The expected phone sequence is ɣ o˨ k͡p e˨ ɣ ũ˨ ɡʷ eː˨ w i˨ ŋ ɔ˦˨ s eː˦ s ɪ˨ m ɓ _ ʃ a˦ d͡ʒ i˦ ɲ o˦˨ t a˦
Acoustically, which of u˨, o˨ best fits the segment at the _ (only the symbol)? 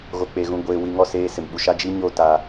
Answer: u˨